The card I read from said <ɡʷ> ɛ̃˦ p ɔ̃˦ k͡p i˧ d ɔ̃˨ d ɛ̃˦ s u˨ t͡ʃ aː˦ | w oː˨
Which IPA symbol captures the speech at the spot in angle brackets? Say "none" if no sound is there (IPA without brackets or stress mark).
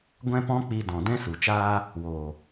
ɡʷ